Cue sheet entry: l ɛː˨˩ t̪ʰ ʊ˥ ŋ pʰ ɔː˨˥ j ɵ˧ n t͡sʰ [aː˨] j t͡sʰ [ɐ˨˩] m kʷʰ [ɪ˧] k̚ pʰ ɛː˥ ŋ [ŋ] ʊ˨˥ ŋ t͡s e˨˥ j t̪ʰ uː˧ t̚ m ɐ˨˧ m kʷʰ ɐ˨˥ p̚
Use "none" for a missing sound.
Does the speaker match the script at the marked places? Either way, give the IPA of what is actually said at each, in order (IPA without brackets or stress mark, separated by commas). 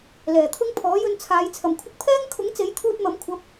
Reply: aː˨˧, ɐ˨˩, ɪ˧, kʰ